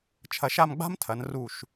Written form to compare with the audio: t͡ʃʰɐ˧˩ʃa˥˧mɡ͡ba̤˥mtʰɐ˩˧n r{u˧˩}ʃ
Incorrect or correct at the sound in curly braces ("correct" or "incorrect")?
correct